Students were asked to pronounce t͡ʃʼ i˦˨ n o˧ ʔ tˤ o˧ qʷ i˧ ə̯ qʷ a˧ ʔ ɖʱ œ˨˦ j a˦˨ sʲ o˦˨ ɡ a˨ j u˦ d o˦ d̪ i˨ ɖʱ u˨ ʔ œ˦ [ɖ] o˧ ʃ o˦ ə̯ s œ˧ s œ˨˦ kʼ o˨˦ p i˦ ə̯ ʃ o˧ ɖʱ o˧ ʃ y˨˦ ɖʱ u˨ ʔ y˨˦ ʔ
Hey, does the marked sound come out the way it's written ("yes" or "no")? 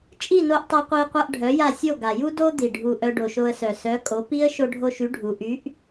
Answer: yes